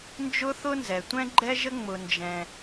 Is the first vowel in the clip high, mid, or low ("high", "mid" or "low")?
high